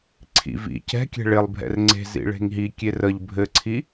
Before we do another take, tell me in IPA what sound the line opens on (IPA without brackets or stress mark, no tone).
ǀʰ